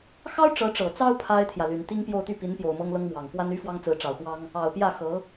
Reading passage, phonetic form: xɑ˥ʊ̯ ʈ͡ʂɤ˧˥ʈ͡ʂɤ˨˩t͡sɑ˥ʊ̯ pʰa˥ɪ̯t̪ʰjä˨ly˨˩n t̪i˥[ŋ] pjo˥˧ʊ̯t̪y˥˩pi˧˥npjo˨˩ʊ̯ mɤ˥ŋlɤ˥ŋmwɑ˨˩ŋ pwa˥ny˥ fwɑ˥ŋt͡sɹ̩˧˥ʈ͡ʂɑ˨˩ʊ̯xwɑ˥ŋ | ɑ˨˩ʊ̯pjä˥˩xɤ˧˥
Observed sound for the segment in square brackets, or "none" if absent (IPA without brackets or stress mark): ŋ